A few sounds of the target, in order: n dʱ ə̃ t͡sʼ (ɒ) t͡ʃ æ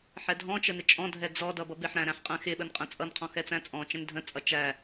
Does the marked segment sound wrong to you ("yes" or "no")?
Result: yes